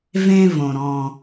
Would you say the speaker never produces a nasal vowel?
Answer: no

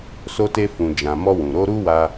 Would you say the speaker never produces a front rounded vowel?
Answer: yes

